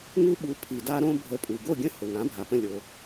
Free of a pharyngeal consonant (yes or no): yes